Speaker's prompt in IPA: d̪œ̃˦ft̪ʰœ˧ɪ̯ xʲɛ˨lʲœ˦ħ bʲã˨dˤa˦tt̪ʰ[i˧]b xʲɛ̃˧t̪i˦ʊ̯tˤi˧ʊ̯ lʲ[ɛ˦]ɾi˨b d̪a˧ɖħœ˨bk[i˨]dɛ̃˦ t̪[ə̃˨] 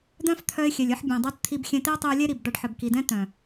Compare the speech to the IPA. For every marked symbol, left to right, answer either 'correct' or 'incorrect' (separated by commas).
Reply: correct, correct, correct, incorrect